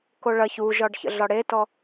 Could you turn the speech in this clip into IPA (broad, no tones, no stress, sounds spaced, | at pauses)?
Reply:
k o ɭ ɐ ç u ʒ ɒ ɖ ç ə̰ ɮ ɒ ɽ e t ɔ